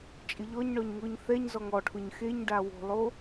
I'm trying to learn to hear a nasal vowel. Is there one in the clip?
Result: no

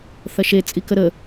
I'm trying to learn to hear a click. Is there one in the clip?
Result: no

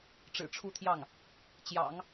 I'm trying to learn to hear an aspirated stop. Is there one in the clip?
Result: yes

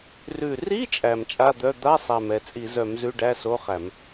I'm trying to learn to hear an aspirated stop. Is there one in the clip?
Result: no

